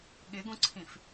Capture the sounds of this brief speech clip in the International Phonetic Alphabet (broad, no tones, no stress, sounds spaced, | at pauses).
ɠ ɪ ɡ ũ ǀʰ ĩ f